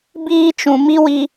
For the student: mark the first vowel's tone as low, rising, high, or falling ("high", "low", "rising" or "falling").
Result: high